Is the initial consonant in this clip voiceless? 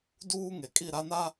no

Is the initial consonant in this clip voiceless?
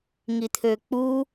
no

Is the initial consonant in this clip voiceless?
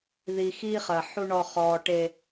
no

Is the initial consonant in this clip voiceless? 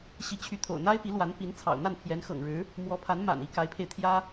yes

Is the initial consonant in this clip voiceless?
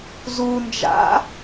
no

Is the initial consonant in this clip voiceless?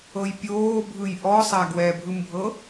no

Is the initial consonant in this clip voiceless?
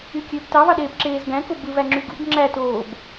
yes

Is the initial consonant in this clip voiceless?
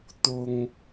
yes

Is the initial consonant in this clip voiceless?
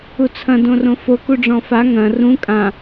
yes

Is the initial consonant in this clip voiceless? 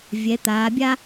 no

